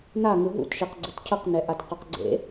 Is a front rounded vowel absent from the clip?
yes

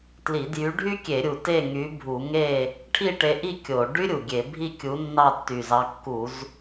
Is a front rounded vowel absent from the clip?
no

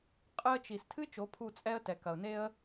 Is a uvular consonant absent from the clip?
no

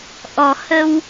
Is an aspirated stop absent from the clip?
yes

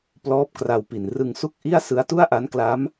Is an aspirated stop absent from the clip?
yes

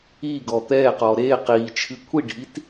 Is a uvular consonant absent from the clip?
no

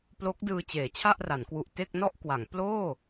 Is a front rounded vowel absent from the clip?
yes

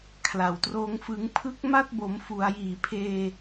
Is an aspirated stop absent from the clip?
no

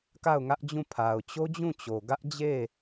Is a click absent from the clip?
yes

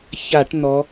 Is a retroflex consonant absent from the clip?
no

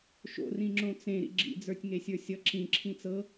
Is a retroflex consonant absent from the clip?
yes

